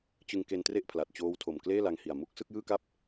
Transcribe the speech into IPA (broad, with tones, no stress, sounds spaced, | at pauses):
t͡ɕ ɯ˧ ŋ k e˧ n t r e˥˩ ʔ pʰ l a˨˩ t̚ t͡ɕ oː˦˥ w tʰ o˨˩ m k l eː˥˩ l a˧ ŋ h i˨˩ a̯ m u˦˥ k̚ s ɯ˥˩ k̚ j ɯː˥˩ k a˥˩ p̚